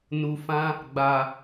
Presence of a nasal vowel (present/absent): present